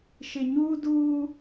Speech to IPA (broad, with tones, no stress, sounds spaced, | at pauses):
ʃ ɪ˨ ɲ uː˦ d uː˦